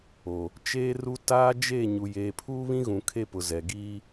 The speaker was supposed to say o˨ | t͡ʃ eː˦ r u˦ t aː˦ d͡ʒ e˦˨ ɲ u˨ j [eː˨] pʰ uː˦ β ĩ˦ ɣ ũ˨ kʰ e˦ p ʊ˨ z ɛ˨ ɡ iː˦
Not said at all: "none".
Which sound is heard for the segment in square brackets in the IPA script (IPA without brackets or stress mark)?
eː˨